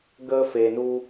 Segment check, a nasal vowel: absent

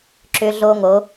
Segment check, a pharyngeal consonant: absent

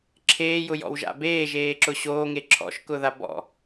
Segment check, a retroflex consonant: absent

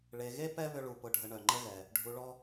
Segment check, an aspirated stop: absent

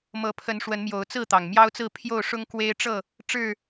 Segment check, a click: absent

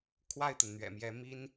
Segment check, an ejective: absent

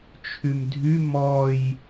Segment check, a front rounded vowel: present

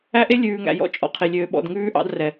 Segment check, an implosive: present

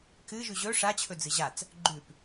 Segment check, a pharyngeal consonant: absent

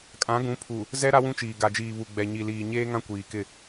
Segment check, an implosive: absent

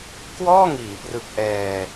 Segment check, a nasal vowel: absent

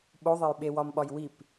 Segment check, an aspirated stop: absent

